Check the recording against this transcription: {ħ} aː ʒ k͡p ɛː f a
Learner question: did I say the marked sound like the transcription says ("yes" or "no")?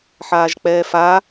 yes